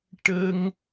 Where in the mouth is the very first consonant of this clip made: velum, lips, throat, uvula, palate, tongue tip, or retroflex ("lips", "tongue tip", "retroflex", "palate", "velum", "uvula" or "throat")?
retroflex